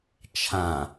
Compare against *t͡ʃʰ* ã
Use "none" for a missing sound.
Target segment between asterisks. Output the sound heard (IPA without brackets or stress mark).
t͡ʃʰ